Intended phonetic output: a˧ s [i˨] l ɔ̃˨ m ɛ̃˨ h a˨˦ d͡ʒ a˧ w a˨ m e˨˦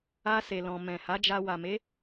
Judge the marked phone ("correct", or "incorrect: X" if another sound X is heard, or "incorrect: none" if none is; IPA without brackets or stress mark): incorrect: e˨